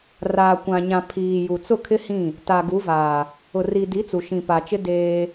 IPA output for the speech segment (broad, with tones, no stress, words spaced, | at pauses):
raː˨kʷã˨ɲã˨ pʰiː˨ ju˨ t͡sʊ˦˨kʰɪ˦hĩ˦˨ | ta˨ɡu˨˦vaː˨ | ʊ˨ri˨di˨˦t͡su˨ ʃĩ˨pa˨t͡ʃɪ˦ deː˦